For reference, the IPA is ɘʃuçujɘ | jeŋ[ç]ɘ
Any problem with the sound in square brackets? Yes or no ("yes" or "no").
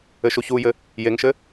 yes